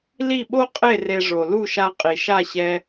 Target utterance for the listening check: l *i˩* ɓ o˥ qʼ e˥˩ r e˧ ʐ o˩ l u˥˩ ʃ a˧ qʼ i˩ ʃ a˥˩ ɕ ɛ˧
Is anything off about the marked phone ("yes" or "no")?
yes